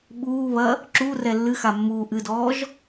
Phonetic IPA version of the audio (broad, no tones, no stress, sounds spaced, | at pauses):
ɓ uː β ɐ | ǁ u r ɛ lː ɨ x a mː uː ʔ ɨ d ɔː ʒ